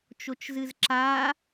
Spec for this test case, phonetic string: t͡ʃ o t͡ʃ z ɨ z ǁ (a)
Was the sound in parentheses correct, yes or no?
no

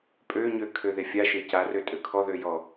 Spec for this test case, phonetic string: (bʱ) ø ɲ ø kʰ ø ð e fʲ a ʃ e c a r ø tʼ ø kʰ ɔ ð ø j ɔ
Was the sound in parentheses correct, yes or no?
no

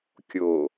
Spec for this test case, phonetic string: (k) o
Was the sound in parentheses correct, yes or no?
no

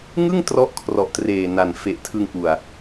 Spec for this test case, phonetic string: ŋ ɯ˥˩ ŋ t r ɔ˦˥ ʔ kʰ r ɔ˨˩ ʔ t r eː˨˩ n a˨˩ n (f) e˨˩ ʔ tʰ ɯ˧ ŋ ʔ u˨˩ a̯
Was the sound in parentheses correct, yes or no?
yes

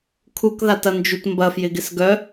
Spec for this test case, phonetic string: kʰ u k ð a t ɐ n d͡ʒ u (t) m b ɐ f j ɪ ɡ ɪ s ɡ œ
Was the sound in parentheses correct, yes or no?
yes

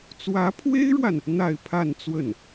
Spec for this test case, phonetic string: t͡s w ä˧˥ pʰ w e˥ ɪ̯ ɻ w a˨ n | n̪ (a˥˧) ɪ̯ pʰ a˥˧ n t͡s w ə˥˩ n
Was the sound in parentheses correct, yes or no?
yes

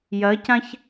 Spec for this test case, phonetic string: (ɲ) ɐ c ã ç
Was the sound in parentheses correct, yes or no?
no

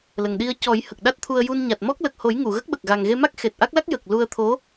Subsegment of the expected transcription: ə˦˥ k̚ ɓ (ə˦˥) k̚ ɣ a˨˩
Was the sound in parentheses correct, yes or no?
no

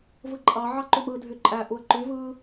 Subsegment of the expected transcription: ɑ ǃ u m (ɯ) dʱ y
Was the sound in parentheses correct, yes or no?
yes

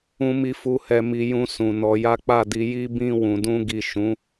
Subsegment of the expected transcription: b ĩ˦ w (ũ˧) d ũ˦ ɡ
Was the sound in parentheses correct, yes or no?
yes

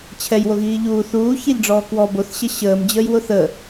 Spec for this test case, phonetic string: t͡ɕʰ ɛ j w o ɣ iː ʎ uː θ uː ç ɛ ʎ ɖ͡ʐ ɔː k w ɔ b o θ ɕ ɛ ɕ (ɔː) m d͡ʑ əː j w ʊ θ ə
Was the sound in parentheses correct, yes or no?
no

